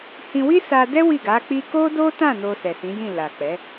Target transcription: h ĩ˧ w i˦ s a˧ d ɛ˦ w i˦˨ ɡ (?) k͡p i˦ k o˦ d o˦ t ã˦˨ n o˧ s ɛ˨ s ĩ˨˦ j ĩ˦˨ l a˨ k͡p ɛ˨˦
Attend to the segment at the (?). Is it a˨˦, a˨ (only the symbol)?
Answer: a˨˦